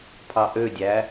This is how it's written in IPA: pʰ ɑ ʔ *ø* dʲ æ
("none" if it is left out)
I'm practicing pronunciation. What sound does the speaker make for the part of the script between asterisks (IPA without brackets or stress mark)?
ø